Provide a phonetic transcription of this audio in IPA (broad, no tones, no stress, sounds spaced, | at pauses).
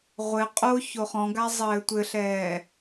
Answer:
ʁʷ ɘ qʼ o ç o χ ɔ̃ ɡ a zˤ ɘː tʷ ɘ ɬ ɛː